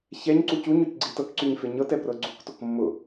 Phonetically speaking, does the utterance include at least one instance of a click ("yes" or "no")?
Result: yes